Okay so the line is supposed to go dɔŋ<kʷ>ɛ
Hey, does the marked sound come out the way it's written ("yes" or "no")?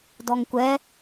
yes